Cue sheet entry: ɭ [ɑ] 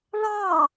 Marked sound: correct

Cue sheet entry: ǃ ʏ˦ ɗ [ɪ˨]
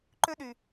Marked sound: incorrect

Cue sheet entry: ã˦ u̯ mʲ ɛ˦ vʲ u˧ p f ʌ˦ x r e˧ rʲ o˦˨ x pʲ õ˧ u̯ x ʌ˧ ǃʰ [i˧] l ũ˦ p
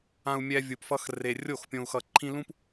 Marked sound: incorrect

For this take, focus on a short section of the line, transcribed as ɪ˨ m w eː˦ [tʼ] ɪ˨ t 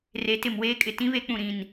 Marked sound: incorrect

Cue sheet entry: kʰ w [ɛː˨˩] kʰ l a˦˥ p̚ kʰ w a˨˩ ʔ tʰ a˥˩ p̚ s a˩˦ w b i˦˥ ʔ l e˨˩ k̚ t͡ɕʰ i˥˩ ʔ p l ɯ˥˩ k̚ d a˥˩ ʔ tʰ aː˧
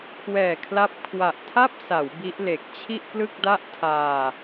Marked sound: correct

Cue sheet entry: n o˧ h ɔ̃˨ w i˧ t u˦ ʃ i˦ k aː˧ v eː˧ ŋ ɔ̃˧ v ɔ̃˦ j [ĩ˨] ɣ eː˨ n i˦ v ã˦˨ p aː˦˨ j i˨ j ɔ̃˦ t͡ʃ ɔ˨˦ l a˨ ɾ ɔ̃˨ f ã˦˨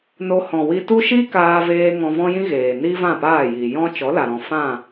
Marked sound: incorrect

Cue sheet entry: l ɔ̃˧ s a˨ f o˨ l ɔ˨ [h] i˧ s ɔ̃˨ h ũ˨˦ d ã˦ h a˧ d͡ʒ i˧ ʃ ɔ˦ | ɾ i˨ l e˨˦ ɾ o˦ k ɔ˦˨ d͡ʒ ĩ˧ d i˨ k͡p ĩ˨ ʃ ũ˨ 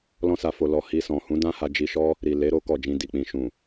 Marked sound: correct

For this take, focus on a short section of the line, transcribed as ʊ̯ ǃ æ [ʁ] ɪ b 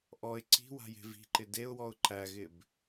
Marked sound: incorrect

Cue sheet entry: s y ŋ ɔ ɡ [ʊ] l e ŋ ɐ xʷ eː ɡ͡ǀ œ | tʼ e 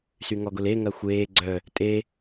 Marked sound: correct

